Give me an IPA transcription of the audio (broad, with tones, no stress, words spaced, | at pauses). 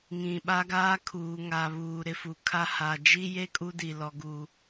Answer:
ŋĩ˨ ɓa˦ɡaː˦kʰuː˨ŋa˨ βuː˨ɾɪ˨fu˨ kʰa˦ ha˨ d͡ʒi˦je˦ kʼu˦di˨lɔ˨ɡu˨